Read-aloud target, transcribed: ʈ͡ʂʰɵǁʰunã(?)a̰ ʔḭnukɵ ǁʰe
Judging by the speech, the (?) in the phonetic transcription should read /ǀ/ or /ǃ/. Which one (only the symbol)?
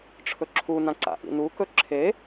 ǀ